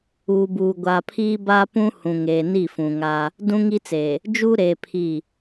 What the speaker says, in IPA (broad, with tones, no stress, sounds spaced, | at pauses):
uː˨ b uː˨ ɡʷ a˨ pʰ iː˦ b aː˦ p ũ˦ h ũ˨ ŋ eː˨ n i˦˨ f ũ˨ ŋ a˦ | d ũ˦ ŋ i˦ t͡s eː˨ | d͡ʒ uː˦ ɾ eː˨ pʰ i˦˨